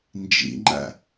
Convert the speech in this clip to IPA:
n d͡ʒ ḭ ŋ͡ǃ æ̰

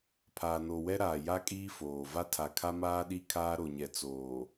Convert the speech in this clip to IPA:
pʰ aː˨ n o˨ w ɛ˦ ɾ aː˨ j a˦ kʼ iː˦ f oː˨ v a˦ tʰ a˨ kʰ a˦ m aː˦ ɗ i˦ kʰ aː˦ ɾ o˨ ɲ ɛ˨ t͡s oː˨

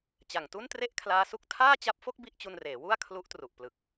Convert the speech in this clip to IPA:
t͡ɕ a˨˩ ŋ t u˥˩ n t r e˥˩ ʔ kʰ l aː˦˥ s u˦˥ k̚ tʰ aː˥˩ t͡ɕ a˦˥ p̚ f o˥˩ k̚ b i˥˩ ʔ t͡ɕ u˧ n r eː˩˦ w u˥˩ a̯ kʰ l u˦˥ ʔ t r u˨˩ ʔ p l ɯ˨˩ k̚

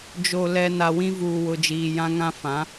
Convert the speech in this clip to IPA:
d͡ʒ o˨ l ɛ˨ n a˨ w ĩ˦ v uː˨ w ʊ˨ d͡ʒ iː˨ j ã˦ ŋ ã˦ f ã˨˦

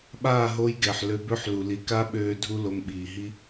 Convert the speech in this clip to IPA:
ɓ aː˦˨ ɦ o˧ j ɡ ɛ˨ ħ l ø˧ b ø˦ ħ l u˨ l i˨ k a˦ ɓ øː˧ dʱ u˦ l o˧ m ɓ iː˨ ɦ i˦

